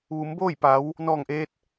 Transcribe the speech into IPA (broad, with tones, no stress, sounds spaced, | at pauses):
ʋ u˩˧ m b oː˥˨ j p a˩˧ w | n ɔː˧˩ ŋ ʔ eː˧ t̚